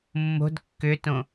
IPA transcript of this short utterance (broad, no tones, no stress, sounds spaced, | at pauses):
mː o̤ d kː ʏ t õ